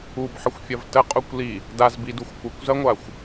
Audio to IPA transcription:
u b ħ ə xʷ fʲ ɐ v t ə qʼ u kʷ l i | d a z b i d u xʷ kʷ ə kʷ z ɐ ŋʷ a xʷ

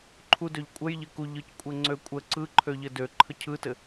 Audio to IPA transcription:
ǃʰ u d ø ʎ kʷʼ ə j ʎ ɘ k u ʎ ɯ c kʷʼ ɘ ŋ͡ǀ ø kʷʼ ə ǀ ɯ ǃʰ ø ʎ ɘ d ø ǃʰ ə cʰ ɯ t ɘ

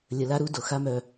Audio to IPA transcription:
lʲ ə˨ l a˦ ɾ u˦ d o˨ x a˦ m œ˨

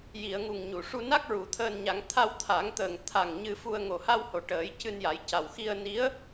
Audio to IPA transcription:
j i˨˩˨ ə̯ ŋ u˨˩ ŋ ɲ u˨˩˨ ʂ u˧ n a˦˥ k̚ ɹ u˨˩˨ t̪ʰ əː˧ n ɲ a˨˩˦ ŋ t̪ʰ a˧ w t̪ʰ a˨˩˦ ŋ t̪ əː˨˩ ŋ t̪ʰ a˨˩ ŋ ɲ ɨ˧ f u˧ ə̯ ŋ o˨˩ h a˧ w h o˨˩ ʈ əː˨˩˦ j c ɨ˧ n j a˨˩˦ j c a˨˩ w x i˧ ə̯ n i˧˥ ə̯

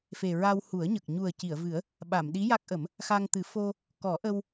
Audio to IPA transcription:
f e˨˩ ɹ a˧ w h u˨˩˦ ə̯ ɲ ə˨˩ k̚ ɲ u˨˩ ə̯ c i˨˩˨ ə̯ v ɨ˨˩˦ ə̯ | ɓ a˨˩˨ m ɗ i˧˥ j a˦˥ k̚ ʔ ə˨˩˦ m | x a˧ ŋ t̪ ɨ˨˩˦ f o˧ | k ɔ˨˩˦ ʔ ə˧ w

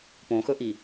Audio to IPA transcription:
p õ x ɵ ʔ i

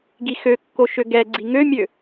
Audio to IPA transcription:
ɡ i x ø kː o ʃ ø ɡ ɛ ɡ͡ǀ i ŋ ø mʲ ø

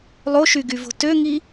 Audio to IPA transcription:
lˠ o ʃ y ɡ y v o̤ t ø ŋ i

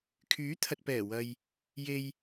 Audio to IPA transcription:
kʰ yː˨˥ t̪ʰ ɐ˨ t̚ p ɛː˨˩ w ɐ˨ j | j e˨ j

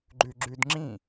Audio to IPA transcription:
ɡ͡ǃ ʉ ɡ͡ǁ ʉ d ŋ͡ǁ ĩ

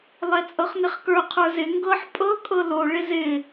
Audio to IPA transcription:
lˠ ɛ t͡sʼ ɤ χ n ɪ χ k ə˞ qʰ ə˞ z ɪ ŋ ɡ ɤ ħ pʼ ɤ kʼ ɤ l o ɭ ɪ z ɪ

